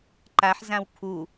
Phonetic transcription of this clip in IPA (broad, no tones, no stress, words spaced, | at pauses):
ǃaħzãw kʰu